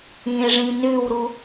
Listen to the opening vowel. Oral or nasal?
nasal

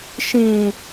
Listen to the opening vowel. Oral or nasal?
nasal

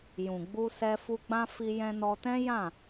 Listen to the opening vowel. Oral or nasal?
nasal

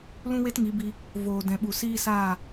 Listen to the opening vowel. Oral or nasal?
nasal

